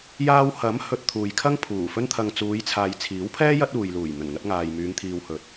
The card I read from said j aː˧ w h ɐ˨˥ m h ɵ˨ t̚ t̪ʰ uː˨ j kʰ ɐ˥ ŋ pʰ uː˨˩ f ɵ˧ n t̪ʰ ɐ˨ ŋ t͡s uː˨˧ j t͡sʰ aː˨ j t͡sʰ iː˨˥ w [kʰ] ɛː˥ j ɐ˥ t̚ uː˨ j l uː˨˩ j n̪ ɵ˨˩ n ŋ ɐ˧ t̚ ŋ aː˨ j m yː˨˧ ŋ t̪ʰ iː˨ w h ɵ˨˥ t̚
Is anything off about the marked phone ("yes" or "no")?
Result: yes